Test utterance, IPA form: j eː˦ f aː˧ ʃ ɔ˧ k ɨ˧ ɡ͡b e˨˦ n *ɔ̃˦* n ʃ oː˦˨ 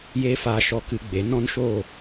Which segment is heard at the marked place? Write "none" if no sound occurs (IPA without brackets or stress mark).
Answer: ɔ̃˦